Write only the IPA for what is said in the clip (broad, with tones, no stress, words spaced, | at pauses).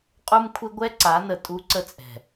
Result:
qʼu˦mkʷʰɪ˦ ɡʷɛ˦ǀa˨˦nə˨ tʼu˦ǀə˦t͡sʼɛ̤˨